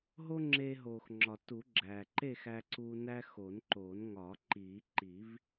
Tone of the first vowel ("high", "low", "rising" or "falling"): high